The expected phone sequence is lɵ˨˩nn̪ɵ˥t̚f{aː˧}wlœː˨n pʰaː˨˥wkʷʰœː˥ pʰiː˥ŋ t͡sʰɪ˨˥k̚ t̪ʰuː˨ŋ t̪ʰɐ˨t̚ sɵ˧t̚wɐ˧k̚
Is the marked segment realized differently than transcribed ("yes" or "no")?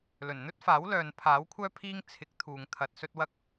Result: yes